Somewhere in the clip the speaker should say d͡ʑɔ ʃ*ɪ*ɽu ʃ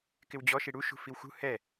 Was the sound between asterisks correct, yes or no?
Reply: no